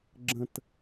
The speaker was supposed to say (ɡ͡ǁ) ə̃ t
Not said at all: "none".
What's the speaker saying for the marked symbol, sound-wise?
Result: ɡ͡ǁ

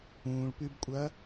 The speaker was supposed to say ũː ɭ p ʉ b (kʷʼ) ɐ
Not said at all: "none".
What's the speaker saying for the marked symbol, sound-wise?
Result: kʷʼ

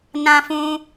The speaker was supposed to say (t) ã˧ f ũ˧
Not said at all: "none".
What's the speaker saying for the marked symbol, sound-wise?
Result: n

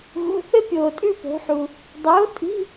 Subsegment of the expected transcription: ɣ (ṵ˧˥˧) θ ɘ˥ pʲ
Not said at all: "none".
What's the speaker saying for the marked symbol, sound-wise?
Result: ṵ˧˥˧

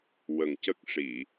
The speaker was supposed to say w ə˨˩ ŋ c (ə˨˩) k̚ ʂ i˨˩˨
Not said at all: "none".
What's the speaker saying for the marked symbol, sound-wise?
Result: ə˦˥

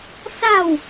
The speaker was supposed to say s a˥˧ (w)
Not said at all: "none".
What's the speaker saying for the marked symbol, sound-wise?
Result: w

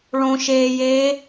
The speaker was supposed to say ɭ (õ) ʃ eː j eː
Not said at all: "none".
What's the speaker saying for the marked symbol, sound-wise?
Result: õ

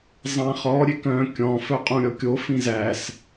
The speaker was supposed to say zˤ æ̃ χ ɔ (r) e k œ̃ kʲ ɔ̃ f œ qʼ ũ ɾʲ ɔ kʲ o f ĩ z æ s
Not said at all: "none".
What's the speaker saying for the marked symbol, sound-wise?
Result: ɾʲ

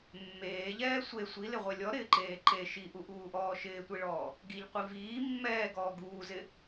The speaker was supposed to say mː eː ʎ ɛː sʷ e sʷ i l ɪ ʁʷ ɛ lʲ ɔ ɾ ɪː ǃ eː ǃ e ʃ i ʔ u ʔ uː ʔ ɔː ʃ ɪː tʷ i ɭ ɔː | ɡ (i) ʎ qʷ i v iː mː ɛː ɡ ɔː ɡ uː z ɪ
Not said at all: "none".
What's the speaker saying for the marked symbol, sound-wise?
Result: i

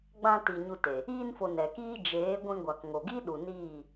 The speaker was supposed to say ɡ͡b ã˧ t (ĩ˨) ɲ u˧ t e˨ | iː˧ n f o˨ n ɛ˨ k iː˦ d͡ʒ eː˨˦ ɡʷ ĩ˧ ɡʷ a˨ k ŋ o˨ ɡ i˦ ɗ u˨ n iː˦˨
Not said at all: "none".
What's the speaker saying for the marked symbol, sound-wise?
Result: i˨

